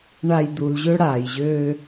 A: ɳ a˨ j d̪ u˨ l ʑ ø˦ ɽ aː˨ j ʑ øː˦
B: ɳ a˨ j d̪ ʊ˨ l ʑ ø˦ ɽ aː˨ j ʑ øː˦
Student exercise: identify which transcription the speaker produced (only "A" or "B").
A